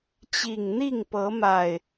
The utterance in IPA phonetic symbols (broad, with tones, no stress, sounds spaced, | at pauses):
t͡ɕ i˨˩ ŋ n̪ i˥˨ ŋ p ɤ˨˦ m a˨˩ ɪ̯